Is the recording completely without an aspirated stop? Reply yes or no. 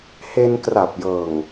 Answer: yes